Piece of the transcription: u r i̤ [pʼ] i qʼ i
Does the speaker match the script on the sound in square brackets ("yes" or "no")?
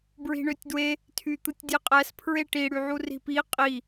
no